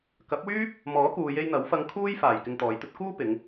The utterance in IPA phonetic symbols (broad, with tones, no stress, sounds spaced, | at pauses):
k ɐ˨˥ p̚ w yː˥ p̚ | m ɔː˨˥ k uː˨ j e˧ j n̪ ɐ˨˥ w f ɐ˧ ŋ kʰ uː˥ j f aː˨˩ j k ɪ˧ ŋ t̪ ɔː˨˧ j t̪ ɵ˥ t̚ k uː˥ p ɪ˨˧ ŋ